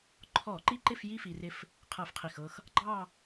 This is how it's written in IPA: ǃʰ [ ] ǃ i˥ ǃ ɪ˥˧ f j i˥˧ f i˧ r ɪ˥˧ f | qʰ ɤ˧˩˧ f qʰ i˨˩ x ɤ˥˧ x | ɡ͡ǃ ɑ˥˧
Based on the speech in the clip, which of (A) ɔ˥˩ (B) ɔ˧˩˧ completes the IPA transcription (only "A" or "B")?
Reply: B